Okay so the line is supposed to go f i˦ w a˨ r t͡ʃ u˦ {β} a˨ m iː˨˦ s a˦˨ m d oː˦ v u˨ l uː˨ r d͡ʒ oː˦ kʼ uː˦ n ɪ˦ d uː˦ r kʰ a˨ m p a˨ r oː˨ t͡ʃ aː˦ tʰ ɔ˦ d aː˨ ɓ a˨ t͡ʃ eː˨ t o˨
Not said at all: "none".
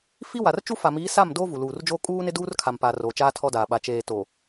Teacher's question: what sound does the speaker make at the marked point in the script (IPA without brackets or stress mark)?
f